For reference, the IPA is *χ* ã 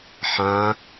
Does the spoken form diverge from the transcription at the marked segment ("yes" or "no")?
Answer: yes